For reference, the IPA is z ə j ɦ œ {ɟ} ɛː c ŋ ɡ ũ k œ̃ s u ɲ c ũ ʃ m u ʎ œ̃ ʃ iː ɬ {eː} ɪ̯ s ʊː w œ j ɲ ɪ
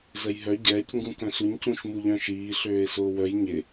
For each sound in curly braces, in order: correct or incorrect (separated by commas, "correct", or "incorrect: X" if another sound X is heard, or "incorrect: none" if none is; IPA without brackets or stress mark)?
correct, incorrect: øː